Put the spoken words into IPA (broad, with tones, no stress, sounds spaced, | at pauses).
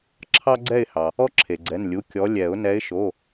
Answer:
ǁʰ ɑ˦ ɡ͡ǀ ɛ˦˨ ɪ̯ h ɑ˩ | ɔ˦ ǁʰ e˩ ɡ͡ǀ ɛ˩˧˩ n lʲ u˩˧˩ kʲ ɔ˨˦ lʲ ɛ˨˩˦ ʊ̯ n ɛ˨˦ ɪ̯ ʃ o˩˧˩